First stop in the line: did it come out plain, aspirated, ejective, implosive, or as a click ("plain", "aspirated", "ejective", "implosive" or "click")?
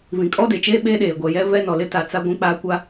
ejective